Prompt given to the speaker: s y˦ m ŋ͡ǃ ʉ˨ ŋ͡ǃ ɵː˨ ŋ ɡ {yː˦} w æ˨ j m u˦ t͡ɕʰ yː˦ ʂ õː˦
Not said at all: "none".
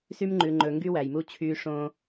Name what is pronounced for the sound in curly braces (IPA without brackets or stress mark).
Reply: y˦